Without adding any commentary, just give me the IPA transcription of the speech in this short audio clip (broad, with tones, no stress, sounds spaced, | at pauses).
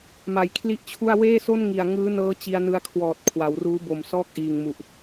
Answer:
m a˨˩ j kʰ l i˥˩ ʔ t͡ɕʰ u˥˩ a̯ w eː˥˩ s o˥˩ n ŋ i˨˩ a̯ ŋ ɯː˦˥ n ɤː˦˥ t͡ɕ i˧ a̯ n ɯ˧ a̯ kʰ w ɔː˨˩ t̚ kʰ w a˩˦ w r uː˦˥ b o˨˩ m s ɔː˥˩ k̚ ʔ iː˨˩ ŋ m u˨˩ ʔ